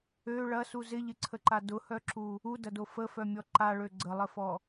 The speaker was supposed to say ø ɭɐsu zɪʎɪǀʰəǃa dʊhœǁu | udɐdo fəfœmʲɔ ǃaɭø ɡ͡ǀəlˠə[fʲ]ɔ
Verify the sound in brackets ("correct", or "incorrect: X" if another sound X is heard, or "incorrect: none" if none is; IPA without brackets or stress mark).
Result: incorrect: f